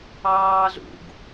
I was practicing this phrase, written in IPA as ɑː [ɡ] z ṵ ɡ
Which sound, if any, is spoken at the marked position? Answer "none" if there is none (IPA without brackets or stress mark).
none